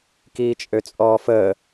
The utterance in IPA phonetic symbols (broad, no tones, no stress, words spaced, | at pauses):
kiːt͡ʃʼøt͡sʼɔːfəː